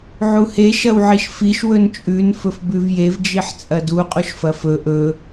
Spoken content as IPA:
ʕ u h e ʃ ɐ w ʕ i ʃ f i ʃ w ɵ n t͡ʃʼ ʉ n f ɵ f b ʉ v j e v d͡ʒ i ħ t͡sʼ ɐ d u qʼ u ʃ f ɐ f ɵ ʔ ɵ

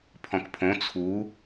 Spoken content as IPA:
pʰ ɔ̃ k pʰ õ t͡sʰ u

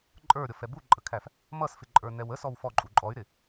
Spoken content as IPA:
ǃʼ ə˞ ɾʲ ɔ f ɛ b u ǃʼ ə kʰ æ f | m ʌ s f ɪ ǃʼ ə˞ n ɛ w ə s ɔ w f ɔ ǃʼ u ǃʼ ɔ y̯ ɾ ɪ

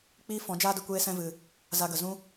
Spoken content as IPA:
k͡p iː˦ f ɔ̃˨˦ d͡ʒ aː˦ d ɨ˨ kʷ eː˦ s ɛ̃˧ v ɨ˨ | z a˧ ɡ ə˨ z ũ˦

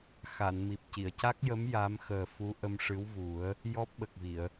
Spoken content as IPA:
x a˨˩˨ n m i˨˩ p̚ c i˨˩˨ ə̯ c a˦˥ k̚ j ə˧˥ m j a˧˥ m x əː˨˩ f u˧˥ ʔ ə˧ m ʂ ɨ˧˥ w v u˨˩˦ ə̯ | j ɔ˦˥ p̚ ɓ ə˨˩ k̚ v i˨˩˨ ə̯

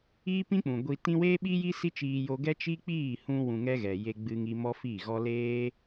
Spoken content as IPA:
iː˦ p ĩ˦ k͡p ũ˨ ɡʷ i˧ t ĩ˦ w eː˦ ɓ i˦ j i˦ s i˦ t͡ʃ iː˧ j o˧ ɡ ɛ˦ t͡ʃ i˦ k͡p iː˦˨ h ũ˧ w ũ˧ ŋ ɛ˦ ɣ ɛ˨ j e˧ ɡ͡b ɨ˧ ŋ i˧ m ɔ˦ f i˦˨ ɣ ɔ˦ l eː˦

